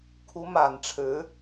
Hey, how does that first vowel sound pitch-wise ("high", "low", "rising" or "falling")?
rising